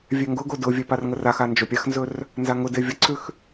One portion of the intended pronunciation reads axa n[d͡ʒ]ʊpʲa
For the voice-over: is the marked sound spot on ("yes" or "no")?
yes